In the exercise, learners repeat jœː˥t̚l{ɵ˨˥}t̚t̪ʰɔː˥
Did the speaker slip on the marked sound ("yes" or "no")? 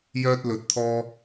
no